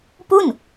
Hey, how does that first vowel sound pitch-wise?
falling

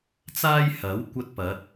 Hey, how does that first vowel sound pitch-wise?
high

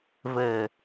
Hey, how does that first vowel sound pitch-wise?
low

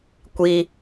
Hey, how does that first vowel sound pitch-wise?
high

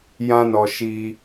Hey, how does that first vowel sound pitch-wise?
high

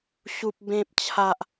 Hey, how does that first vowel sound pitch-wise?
high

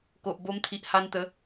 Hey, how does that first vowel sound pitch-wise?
low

